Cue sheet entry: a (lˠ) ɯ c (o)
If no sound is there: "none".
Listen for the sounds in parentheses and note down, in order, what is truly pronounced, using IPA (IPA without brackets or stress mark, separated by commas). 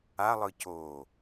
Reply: lˠ, o